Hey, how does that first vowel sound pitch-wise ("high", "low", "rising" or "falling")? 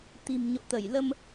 low